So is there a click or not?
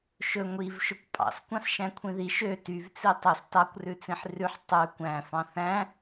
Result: no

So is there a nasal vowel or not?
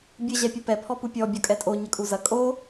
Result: no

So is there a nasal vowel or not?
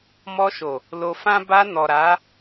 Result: yes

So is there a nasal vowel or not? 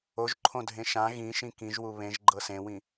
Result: yes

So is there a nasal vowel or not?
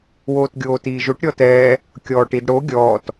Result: no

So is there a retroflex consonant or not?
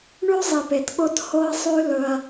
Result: yes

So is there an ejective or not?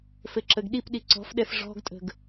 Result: yes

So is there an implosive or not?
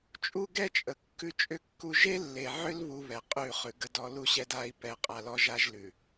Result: no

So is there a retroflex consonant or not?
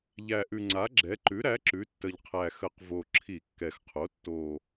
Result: no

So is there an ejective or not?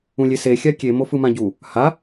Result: no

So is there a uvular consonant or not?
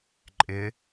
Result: no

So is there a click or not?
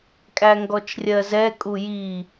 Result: no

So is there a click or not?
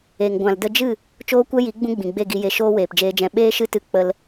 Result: no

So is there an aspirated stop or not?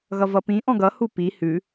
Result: no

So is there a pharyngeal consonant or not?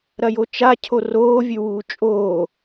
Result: no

